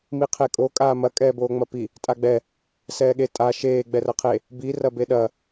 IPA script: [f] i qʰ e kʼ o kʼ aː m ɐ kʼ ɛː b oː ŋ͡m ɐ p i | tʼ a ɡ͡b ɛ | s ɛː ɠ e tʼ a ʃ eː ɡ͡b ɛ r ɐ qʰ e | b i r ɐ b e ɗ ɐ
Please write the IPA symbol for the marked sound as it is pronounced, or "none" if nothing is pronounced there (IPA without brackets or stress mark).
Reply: m